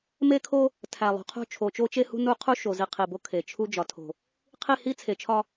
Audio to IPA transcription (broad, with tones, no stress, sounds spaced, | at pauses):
m e˦ kʰ o˦ | tʰ æ˨ lˠ ṳ˨ qʰ o̤˦ t͡ʃʰ o˨ t͡ʃ o˦ t͡ʃ e˦ h ṳ˦ n u˦ qʰ u˦ ʃ o˨ z i˨ qʰ i˨ b o˦ kʰ e˨ t͡ʃʰ u˦ d͡ʒ ɒ˨ tʰ o̤˨ | qʰ i˦˨ h i˦ t͡sʰ e˨ t͡ʃʰ ɒ˦